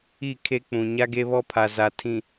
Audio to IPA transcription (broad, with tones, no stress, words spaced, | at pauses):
i˦˨kʰe˦k͡pũ˨ ɲa˦ɡe˦βɔ˦pʰa˨ za˨tʰĩ˨